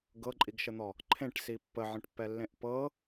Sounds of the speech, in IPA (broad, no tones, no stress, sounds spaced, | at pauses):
ɡ ɤ ǃʼ i ɡ ʃ ə n̪ ɔ | ǃʰ ẽ ʈ s i pː ə ʕ ə̃ ʈ pː ɛ lː ẽ ʔ p ɤ